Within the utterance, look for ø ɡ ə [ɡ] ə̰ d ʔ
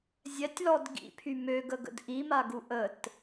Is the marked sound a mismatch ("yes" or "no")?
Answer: no